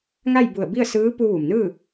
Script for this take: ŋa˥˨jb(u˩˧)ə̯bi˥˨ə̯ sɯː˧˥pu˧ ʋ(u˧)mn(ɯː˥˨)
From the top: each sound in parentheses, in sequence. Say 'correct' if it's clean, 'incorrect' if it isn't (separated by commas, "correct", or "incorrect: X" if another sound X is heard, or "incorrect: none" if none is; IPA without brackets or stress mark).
incorrect: u˧˩, incorrect: u˩, correct